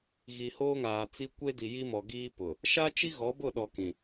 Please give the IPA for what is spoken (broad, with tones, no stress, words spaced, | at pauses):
ɣi˨ hoː˦ŋaː˨t͡si˦ kʷe˦di˨ji˦mɔ˨ ɡiː˦pʊ˨ | ʃa˦t͡ʃi˦ɣɔ˨˦ bʊ˦˨ɗɔ˨ kĩ˨